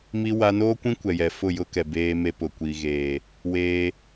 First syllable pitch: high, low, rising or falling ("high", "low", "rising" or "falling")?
high